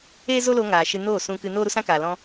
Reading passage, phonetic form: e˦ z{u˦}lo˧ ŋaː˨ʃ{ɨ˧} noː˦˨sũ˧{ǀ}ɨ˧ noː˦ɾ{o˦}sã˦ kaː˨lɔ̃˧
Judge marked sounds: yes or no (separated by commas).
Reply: no, yes, no, no